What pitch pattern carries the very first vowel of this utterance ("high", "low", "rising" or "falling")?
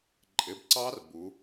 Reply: rising